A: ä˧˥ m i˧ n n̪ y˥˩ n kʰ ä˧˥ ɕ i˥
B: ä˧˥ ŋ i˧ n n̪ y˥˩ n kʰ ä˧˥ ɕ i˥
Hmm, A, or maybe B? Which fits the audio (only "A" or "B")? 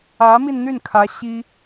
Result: A